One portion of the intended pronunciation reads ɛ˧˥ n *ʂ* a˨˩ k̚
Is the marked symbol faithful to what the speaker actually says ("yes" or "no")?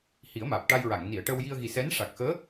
yes